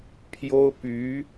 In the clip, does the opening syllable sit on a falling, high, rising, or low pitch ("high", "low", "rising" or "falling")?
high